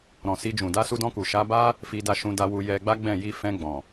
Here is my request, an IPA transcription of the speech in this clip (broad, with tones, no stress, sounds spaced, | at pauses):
ɾ ɔ̃˨ s i˧ d͡ʒ ũ˨ d a˧ s u˧ d ɔ̃˧ k u˨ ʃ a˨˦ b a˦ | f i˧ d a˧ ʃ ũ˧ d a˧ w u˧ j ɛ˧ ɡ͡b a˦ ɡ͡b ɛ̃˦˨ j i˧ f ɛ̃˧ ɡ͡b ɔ̃˨